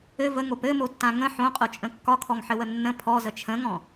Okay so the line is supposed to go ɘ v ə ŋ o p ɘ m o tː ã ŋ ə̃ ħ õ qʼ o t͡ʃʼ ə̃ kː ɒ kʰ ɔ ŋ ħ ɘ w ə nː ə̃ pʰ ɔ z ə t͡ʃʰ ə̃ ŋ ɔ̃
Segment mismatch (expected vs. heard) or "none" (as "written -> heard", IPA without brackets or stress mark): none